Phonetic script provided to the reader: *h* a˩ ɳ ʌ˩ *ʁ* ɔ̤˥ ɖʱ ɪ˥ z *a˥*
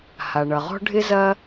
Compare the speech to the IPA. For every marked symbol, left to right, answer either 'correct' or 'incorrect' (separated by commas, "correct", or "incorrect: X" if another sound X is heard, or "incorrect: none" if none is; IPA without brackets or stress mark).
correct, correct, incorrect: ɐ˥